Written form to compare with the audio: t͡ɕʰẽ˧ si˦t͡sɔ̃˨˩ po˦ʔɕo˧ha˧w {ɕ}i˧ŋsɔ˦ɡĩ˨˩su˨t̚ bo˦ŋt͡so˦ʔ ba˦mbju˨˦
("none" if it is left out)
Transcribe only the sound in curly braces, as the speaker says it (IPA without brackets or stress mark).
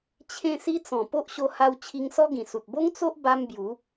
t͡ɕʰ